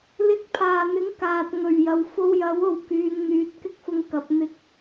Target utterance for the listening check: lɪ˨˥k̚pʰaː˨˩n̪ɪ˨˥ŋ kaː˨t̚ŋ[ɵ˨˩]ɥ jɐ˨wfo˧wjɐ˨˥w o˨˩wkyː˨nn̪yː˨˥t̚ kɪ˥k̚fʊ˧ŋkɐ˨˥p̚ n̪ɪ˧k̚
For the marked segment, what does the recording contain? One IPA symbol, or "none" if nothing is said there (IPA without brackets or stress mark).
ɵ˨˩